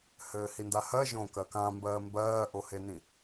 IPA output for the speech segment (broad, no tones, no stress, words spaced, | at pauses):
hɘːhindahɜ ʒõ kɜkãmbɜː mbɜːʔohenĩ